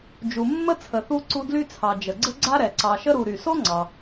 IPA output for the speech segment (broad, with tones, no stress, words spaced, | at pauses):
d͡ʒu˨mːə˦ t͡sʰə˨ θu˦ ǀu˦dly˥t͡sʰɑ˨ d͡ʒə˩ɡ͡ǀə˥ɡ͡ǀa˥ ɾɛ˩ǀɑ˨ʃə˥ɾu˨ ɾy˩so˥ŋ͡ǀɑ˩